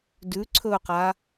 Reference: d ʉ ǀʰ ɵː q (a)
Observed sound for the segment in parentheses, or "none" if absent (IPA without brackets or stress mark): a